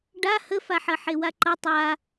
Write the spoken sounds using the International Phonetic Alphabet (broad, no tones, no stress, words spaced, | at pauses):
ɖa həfaħɐ ħewaǃʌ tˤa